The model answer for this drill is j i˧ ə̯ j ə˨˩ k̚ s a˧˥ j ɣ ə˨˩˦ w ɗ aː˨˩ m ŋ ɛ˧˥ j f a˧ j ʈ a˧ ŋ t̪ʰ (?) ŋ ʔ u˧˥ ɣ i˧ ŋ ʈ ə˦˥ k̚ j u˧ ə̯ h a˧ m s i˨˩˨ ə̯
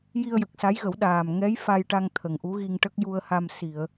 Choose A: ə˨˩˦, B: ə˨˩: B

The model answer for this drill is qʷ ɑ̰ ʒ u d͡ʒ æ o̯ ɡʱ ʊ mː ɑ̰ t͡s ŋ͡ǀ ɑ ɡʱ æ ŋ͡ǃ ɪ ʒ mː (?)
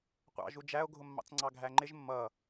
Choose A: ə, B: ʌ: B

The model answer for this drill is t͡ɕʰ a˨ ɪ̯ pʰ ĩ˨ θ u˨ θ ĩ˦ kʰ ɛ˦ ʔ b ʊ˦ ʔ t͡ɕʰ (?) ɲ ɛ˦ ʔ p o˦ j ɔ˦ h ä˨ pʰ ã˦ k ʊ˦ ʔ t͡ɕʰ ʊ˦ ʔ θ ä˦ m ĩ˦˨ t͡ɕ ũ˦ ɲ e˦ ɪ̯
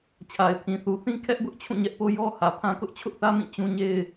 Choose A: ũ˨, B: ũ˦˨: B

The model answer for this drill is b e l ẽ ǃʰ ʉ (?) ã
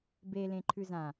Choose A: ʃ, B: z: B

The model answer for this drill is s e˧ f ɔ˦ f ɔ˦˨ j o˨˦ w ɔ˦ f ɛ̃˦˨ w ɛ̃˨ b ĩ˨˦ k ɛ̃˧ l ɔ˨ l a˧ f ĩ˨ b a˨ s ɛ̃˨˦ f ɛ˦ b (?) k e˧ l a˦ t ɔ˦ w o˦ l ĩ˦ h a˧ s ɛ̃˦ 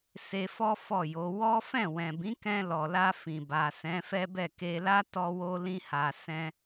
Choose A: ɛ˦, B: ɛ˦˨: B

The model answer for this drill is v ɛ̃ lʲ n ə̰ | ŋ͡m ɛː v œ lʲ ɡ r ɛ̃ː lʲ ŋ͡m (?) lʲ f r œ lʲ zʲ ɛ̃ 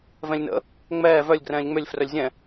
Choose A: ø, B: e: A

